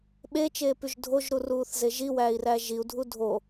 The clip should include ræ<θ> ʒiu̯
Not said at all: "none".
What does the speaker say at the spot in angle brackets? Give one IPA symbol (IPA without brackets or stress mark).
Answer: none